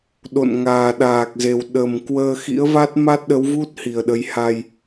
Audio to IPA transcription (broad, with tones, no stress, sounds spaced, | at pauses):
ɗ o̰˧˨ n ŋ aː˨˩ ɗ aː˨˩ k̚ z e˨˩ w ɗ ə˨˩ m k w əː˧ x ḭ˧˥ ə̯ v a˦˥ t̚ m a˦˥ t̚ ɗ ə˨˦ w v u˦˥ t̚ h i˨˩ ə̯ ɗ ə˨˦ j h a˧ j